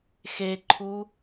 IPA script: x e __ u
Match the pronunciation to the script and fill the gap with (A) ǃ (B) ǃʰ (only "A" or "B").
B